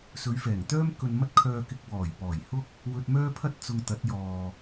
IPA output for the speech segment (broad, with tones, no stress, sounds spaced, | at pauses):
s ɵ˨˧ ɥ f ɛː˨˩ ŋ t̪ œː˥ m k ɵ˧ n m ɐ˥ t̚ kʰ œː˧ k ɪ˧ k̚ w ɔː˨˩ j p ɔː˨˩ j h ʊ˥ k̚ | w ɵ˧ t̚ m œː˥ pʰ ɐ˥ t̚ t͡s ʊ˧ ŋ t̪ ɐ˨˥ t̚ j ɔː˨